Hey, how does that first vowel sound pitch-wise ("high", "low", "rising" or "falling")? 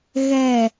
falling